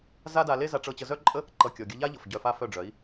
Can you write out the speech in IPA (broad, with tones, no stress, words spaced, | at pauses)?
za˦da˧le˦ za˧ʈ͡ʂɤ˧ t͡ɕə˧zœ˦ǃʼə˦ | ǃʌ˧ kʲɔ˨ɡʲə˧ʎa˦ʎʌ˨f ɟœ˧fa˦fœ˦˨ɖ͡ʐœ˨˦i̯